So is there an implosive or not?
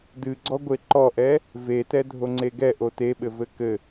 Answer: yes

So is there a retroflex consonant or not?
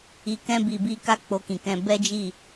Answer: no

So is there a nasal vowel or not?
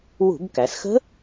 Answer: no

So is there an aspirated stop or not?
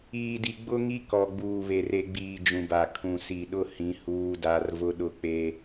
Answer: yes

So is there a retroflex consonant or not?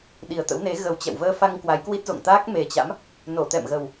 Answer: no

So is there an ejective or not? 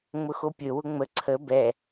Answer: no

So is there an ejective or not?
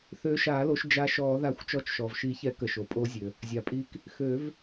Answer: yes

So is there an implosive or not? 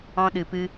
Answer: yes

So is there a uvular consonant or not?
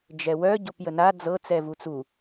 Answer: no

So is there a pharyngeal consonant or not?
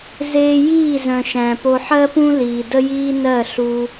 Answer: yes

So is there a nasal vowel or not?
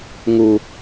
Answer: no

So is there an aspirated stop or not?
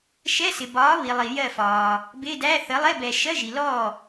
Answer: no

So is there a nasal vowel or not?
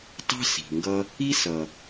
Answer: no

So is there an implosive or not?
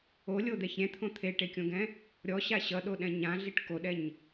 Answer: yes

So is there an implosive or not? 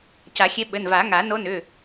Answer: yes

